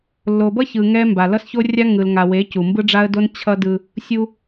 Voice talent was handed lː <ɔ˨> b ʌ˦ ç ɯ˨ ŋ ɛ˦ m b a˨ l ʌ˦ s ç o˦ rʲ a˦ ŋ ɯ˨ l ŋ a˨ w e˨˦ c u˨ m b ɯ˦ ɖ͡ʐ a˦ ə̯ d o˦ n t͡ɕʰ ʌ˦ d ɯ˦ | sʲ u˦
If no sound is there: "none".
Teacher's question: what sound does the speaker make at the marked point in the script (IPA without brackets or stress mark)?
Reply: o˨